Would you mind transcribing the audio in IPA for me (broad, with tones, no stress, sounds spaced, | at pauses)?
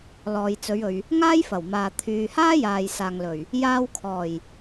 l ɔː˨ j t͡s ɵ˨˧ ɥ ɵ˨ ɥ | ŋ aː˥ j f ɐ˨˩ w m aː˨ t̪ʰ yː˨ h aː˥ j aː˨ j s aː˨ ŋ l ɵ˨˩ ɥ | j aː˧ w kʰ ɔː˨˩ j